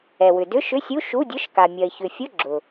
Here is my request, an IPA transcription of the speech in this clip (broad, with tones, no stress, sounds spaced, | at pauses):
ɛ˩ w ʏ˩ d ʏ˧˥˧ ʃ ʏ˧˥˧ sʲ u˧˥˧ ʃ u˧˥˧ dʲ ʊ˧˥˧ ʃ k a˩ mʲ ɐ˩ ɪ̯ ç ʏ˩ fʲ ʊ˧˥˧ ɡ͡ǁ ʊ˩